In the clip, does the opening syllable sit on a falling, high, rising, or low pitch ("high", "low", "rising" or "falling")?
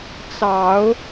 rising